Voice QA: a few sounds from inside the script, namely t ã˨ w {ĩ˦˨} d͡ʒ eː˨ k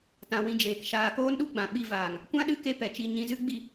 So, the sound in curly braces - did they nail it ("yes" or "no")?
no